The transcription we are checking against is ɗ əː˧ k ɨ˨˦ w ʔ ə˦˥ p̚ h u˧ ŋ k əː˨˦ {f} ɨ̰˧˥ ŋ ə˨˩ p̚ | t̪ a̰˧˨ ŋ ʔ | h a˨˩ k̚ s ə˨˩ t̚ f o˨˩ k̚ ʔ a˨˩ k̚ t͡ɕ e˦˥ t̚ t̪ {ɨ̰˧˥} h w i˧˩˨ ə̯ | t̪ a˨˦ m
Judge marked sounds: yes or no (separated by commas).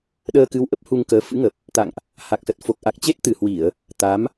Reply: yes, no